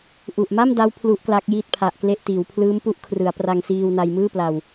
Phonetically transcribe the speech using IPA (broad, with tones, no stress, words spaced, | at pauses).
ʔu˨˩ʔ ma˥˩m da˦˥w pʰlu˦˥ʔkla˦˥k̚ jiː˥˩t̚pʰa˨˩ʔkle˥˩ʔtiː˩˦w pʰlɯː˦˥mpu˦˥ʔ kʰrɯ˩˦a̯pra˧ŋsiː˧wna˧j mɯː˥˩pla˨˩w